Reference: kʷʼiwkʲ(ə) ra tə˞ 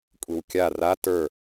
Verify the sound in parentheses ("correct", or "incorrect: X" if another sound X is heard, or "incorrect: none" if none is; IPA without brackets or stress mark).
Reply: incorrect: a